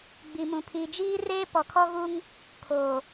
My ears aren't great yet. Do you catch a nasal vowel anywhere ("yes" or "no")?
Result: yes